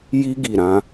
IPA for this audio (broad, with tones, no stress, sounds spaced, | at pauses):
j i˦ ɡ i˦˨ ɾ ã˨˦